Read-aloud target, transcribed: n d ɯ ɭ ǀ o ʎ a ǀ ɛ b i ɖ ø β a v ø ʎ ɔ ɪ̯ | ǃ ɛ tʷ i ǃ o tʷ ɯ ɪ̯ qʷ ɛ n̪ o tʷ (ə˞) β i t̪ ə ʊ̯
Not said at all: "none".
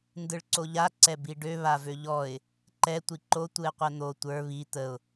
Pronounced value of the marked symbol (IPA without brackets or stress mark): ə˞